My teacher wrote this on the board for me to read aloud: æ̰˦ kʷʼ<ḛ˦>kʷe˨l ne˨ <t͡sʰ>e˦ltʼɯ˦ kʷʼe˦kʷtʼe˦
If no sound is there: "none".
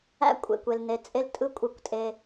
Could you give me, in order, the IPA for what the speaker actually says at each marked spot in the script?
ḛ˨, t͡sʼ

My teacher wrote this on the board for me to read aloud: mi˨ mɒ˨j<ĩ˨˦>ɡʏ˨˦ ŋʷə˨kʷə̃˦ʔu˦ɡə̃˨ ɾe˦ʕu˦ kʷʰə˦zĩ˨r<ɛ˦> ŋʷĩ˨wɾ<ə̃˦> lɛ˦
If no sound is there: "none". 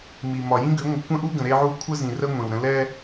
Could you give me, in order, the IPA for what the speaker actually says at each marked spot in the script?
ĩ˦, ə˦, ə̃˦

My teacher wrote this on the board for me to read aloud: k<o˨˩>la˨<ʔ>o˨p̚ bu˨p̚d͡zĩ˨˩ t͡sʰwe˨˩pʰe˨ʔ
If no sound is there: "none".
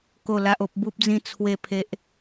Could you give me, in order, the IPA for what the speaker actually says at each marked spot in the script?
o˨˩, ʔ

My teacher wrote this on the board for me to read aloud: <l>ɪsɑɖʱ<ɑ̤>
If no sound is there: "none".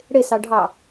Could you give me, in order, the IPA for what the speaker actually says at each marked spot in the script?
ɽ, ɑ

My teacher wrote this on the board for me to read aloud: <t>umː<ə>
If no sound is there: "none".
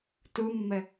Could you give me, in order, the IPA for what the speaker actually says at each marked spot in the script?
t, ə

